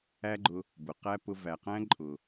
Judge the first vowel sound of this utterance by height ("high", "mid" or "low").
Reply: low